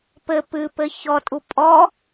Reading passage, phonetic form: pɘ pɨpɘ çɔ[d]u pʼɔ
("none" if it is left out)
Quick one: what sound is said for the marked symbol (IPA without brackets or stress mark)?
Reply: tʼ